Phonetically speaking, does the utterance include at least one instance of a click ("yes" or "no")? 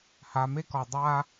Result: no